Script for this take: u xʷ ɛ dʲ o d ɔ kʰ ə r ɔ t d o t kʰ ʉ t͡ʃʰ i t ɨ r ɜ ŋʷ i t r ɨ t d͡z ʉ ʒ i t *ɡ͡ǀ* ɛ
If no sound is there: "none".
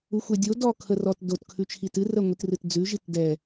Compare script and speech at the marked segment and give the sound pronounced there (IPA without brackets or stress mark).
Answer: d